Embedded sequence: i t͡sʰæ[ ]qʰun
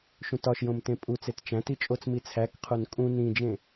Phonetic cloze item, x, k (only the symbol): k